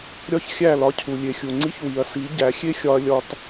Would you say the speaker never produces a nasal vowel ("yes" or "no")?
yes